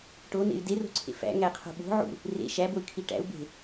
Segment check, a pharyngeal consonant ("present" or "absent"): present